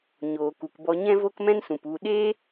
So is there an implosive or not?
yes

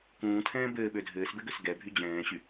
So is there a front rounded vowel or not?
yes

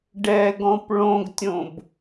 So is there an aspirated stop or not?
no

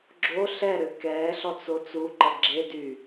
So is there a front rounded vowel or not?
yes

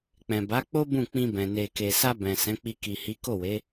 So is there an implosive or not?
no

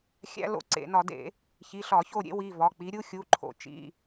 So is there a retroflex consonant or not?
no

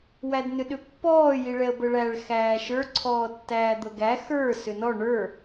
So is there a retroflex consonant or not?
yes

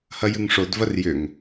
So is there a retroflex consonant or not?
yes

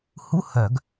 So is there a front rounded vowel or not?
yes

